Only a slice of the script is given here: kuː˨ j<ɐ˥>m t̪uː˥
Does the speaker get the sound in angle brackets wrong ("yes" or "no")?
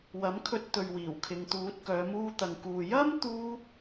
no